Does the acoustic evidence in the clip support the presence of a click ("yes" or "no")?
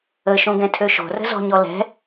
no